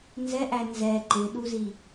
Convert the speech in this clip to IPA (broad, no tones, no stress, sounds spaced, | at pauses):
n z ɛ ʔ æ n z ɛ ǃ ɪ ɗ u z i